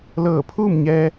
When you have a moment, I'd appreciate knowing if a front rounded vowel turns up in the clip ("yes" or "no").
no